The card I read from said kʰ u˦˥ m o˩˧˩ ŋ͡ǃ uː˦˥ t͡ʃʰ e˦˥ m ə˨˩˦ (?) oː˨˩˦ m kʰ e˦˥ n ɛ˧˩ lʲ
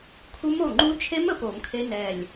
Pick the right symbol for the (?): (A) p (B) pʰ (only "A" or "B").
A